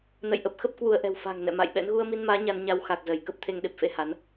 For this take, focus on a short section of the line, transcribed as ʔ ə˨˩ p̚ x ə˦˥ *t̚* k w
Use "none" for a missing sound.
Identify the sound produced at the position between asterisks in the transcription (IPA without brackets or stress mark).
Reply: p̚